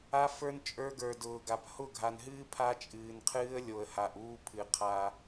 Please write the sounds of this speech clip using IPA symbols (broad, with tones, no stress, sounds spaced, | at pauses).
a˦ f ə˞˦ n t͡ʃʼ ə˞˦ ɡ ə˞˨ d ʊː˨ ɡ a˨ p h ʊ˦˨ ɡʱ a˨ n ɦ ɨː˦ pʰ a˦ t͡ʃʼ ɨː˨ n qʰ ɨː˦ ə̯ lʲ o˨ ə̯ h a˨ ʔ uː˦ pʰ ɨ˨ qʰ a˦